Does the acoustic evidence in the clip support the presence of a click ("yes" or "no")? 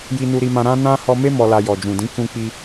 no